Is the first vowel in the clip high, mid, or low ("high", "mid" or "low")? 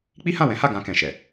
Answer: high